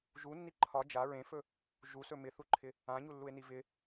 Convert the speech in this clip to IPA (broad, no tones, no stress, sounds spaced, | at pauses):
ʒ u nː i ǃʰ ɒ d͡ʒ a ɹ ẽ f ɵ | ʒ u s ɵ m ɪ θ u ǃʰ ɪ | ã ɲ u lː u e̯ n i v ɪ